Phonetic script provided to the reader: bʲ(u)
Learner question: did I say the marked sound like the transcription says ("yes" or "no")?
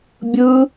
no